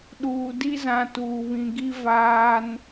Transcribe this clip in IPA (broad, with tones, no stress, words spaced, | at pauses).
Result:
ɗuː˨di˦zã˨ tuː˨βĩ˨ɡi˦ vaː˦n